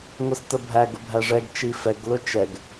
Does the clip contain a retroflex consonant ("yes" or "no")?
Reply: yes